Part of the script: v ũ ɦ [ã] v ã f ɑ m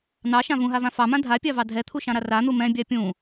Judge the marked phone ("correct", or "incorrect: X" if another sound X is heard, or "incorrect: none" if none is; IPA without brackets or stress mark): incorrect: a